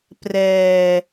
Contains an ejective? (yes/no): no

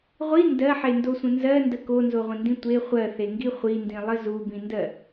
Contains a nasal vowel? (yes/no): yes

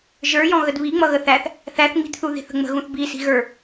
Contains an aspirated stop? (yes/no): no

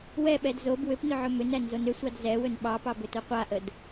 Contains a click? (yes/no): no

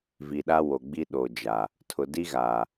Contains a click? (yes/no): no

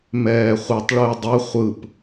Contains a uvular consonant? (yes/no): yes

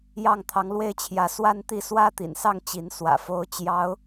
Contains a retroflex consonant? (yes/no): no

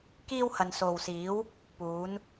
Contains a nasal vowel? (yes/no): no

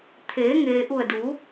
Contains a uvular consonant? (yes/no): no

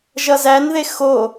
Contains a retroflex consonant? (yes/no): no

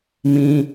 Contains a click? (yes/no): no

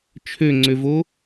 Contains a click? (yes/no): yes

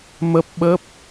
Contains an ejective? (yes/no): no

